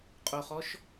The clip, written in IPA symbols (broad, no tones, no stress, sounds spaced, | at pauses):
qʼ o χ ɔ ʃ